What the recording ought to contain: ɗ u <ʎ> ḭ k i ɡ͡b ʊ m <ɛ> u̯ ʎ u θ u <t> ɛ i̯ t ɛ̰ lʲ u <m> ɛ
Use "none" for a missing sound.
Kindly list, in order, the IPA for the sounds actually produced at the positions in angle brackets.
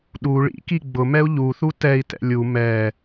ɭ, ɛ, t, m

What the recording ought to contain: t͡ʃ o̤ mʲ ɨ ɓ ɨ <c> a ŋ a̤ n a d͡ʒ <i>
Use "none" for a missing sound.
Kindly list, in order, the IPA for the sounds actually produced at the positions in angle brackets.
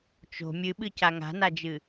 c, ɨ

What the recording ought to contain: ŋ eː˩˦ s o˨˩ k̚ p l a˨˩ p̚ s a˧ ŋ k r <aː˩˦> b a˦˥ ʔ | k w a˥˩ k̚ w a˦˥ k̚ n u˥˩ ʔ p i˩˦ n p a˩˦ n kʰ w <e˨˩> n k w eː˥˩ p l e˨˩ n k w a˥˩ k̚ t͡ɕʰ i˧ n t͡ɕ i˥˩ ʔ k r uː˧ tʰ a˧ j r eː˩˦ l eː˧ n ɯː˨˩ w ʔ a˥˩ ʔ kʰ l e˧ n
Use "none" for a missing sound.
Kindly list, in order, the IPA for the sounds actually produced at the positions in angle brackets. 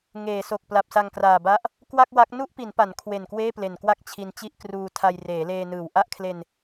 aː˨˩, e˨˩

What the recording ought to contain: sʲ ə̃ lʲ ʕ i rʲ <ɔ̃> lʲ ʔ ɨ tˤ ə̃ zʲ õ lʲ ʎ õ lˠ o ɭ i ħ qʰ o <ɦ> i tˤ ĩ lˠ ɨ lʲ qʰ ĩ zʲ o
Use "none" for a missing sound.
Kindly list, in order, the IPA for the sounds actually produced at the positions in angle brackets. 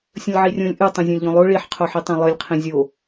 õ, ħ

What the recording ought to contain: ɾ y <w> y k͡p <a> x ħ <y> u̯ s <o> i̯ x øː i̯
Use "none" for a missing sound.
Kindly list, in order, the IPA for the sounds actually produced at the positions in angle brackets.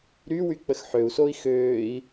w, ə, ø, oː

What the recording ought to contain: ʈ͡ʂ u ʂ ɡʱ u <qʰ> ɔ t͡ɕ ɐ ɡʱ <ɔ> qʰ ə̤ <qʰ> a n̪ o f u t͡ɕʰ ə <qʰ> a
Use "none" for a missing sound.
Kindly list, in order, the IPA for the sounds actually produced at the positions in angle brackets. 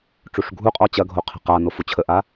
qʼ, o, q, ʔ

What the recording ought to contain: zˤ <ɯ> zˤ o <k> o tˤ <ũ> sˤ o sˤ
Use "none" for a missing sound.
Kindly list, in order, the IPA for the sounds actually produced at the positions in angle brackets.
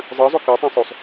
ɯ, k, õ

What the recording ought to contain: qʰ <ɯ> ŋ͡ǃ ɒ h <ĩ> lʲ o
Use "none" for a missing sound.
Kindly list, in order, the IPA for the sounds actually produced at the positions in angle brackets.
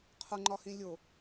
u, ĩ

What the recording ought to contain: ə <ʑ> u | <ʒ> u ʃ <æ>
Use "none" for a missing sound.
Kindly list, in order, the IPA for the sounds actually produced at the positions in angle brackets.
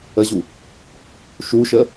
ʑ, ʃ, ə

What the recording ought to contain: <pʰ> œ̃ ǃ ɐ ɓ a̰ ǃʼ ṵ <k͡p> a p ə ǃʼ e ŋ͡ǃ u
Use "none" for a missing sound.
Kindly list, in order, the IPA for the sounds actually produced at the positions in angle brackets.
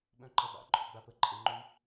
ɓ, ɡ͡b

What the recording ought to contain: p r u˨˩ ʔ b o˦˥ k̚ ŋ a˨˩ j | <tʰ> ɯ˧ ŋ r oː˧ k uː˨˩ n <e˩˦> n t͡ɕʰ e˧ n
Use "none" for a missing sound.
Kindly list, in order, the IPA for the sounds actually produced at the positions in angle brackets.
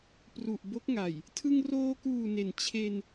tʰ, e˩˦

